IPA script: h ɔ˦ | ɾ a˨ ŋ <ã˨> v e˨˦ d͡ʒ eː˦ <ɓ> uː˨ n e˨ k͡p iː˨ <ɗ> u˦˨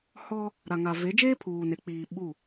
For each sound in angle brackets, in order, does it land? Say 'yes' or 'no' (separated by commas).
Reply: no, no, no